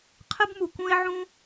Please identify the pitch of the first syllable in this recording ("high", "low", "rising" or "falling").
high